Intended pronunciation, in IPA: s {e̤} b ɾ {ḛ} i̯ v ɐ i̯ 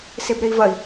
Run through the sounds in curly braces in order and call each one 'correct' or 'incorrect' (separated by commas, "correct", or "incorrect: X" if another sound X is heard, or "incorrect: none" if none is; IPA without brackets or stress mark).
incorrect: e, incorrect: e